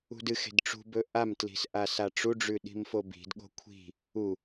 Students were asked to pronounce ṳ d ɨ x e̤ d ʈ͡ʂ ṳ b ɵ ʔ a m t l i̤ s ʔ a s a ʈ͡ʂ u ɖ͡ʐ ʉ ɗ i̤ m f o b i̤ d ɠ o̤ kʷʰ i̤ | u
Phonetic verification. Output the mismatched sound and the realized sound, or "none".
none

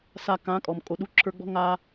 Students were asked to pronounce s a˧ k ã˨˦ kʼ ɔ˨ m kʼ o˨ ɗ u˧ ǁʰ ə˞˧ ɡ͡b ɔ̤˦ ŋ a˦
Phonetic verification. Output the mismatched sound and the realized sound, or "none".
none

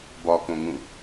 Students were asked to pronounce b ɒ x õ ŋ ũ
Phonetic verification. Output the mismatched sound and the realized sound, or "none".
x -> k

